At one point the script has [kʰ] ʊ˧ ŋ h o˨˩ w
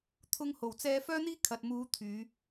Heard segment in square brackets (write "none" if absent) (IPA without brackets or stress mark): t̪ʰ